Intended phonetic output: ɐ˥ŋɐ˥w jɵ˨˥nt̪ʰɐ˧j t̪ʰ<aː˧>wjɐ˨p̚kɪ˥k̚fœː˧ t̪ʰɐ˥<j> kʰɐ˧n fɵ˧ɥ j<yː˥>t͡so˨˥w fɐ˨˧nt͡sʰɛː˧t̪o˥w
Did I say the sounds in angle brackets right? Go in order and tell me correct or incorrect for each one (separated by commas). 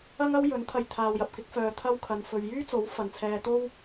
correct, incorrect, correct